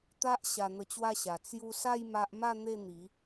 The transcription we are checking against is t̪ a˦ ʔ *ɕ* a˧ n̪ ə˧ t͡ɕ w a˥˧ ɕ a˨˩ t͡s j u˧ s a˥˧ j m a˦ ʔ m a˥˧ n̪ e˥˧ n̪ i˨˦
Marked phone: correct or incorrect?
correct